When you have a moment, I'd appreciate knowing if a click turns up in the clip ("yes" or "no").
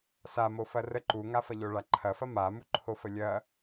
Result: yes